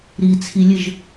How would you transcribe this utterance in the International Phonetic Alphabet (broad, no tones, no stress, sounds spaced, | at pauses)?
ɾ i t͡sʰ i lʲ ɘ ʒ